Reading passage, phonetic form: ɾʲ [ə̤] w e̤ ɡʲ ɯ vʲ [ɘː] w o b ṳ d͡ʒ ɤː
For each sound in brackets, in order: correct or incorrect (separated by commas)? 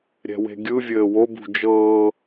incorrect, correct